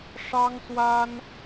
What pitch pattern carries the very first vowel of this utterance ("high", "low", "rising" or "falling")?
high